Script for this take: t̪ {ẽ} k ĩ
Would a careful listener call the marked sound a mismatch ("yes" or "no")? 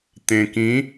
no